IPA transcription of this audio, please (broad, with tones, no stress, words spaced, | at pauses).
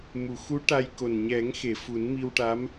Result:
mu˨˩˨xu˧˥ ʈa˧jko˨˩n ɲɛ˨˩˦ŋxe˨˩˨ fu˨˩˦nmi˧wʈa˧˥m